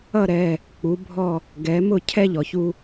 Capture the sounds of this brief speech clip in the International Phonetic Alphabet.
ʌ˦˨ ɾ ɛ˩˧˩ | k͡p u˩˧ bʱ ɔ˦˨ | ɡ ɛ˩˧ m ʊ˦˨ cʰ ɛ˦ ʎ ɔ˩ ç u˦

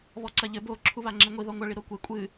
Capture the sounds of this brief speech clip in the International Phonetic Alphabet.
β ɔ ǀ ɐ ʎ ɘ b o ǁʰ u β a ŋ͡ǁ e ŋʷ i ð ɔ ŋʷ ɐ ɭ i ɾ o kʷ e kʷʼ ɨ

